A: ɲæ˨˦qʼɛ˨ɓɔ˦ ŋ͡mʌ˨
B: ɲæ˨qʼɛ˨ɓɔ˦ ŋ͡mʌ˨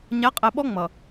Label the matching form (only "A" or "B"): A